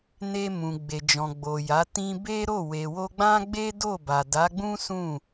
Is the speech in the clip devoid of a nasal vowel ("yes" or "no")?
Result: no